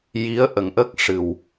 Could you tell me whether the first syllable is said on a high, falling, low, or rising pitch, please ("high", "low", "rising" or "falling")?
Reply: rising